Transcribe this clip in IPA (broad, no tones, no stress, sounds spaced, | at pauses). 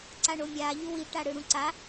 ǀ a ɳ o mʲ a ʎ u w i ʈ a ɽ ɯ ɽ ũ ǀ a